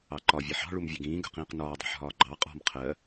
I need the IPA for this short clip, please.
ɑǃɒ vʲɛħɑ̤ ɭumvʲʌɡĩː ɡə̤qĩːqnɒːdˤɛ̤ħ ɦɒːɡ͡ǃɑ qʼɔ̤m qʰɜ

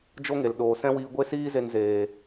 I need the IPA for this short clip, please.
d͡ʒo˦ŋe˨lɗoː˨ sɛ̃˦wiː˧ɡʷe˦ siː˦ze˧nzeː˨

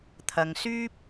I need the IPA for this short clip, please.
t̪ʰɐ˧ŋsyː˥p̚

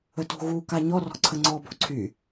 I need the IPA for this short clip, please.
əto̤ɣu kaɲɔ rɔ̤ǀʰəŋ͡ǀɔ bo̤ǀʰy

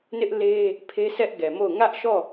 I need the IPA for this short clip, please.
nɪ˦ʔle˦ | pʰe˦sʰɛ˦ʔɡɛ˨mo˦˨ʊ̯ ŋä˦ʔʃɔ˦˨

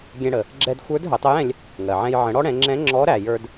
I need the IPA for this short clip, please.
ɡʲɛ̃˧ɽə˩ | ɡ͡ǁɛ˧dxʷə˞˧˥d ɦə˩˧tˤə˧˥jɛ̃˧lʲ | ŋɜ˩ʕɛ̃˧j ʕə̃˩˧ɽɔ˥ ɽɛ̃˩˧ŋ͡ǁɛ̃˧˥ ŋ͡ǁɔ˧˥ɾæ˩jə˞˧d

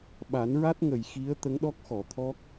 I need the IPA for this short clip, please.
ɓa˨˩˦nɹa˦˥t̚ ŋə˨˩˨j xi˧˥ə̯ t̪ə˧˥ŋɗɔ˦˥k̚xɔ˨˩˨t̪ʰɔ˦˥k̚

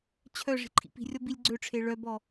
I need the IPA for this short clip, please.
t͡ɕʰœ ʐi̤ǃʰḭpi̤rʲɔ bilʲɡ͡ǀøʈ͡ʂʰe ɭœbɔ

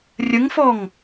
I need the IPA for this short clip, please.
rʲəŋfɔŋ

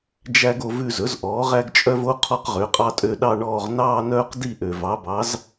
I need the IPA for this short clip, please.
d͡ʒæ˦ɡ o˦˨vʉ˦˨zɵ˩˥z ʔɔː˩˥ʁæ˦ɡt͡ʃʼœ˦vo˦ qʰɔ˦qʁø˩˥qʼɑ˦tʼø˦˨ ɗɑ˦˨ɳɔː˦˨ʁ nɑː˦˨nœː˦˨qdi˦˨ ʔø˩vɑ˩˥bɑ˩˥z

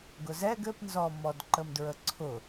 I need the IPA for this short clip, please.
ɡʊzɛɡ ɘpnzɔ mɔdǃəmdɹəǀʰʊ

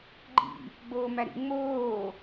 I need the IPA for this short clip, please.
ɡ͡ǃḭ | ɡ͡boːmæɾḭ ŋ͡moː

